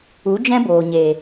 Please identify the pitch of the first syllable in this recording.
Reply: rising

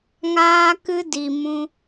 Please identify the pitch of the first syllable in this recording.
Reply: high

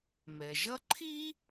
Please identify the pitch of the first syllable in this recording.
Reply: low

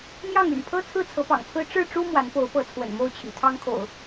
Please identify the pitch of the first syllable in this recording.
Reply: falling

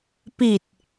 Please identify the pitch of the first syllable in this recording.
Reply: low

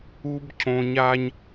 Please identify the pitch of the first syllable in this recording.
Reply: high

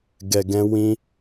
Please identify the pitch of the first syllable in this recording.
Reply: low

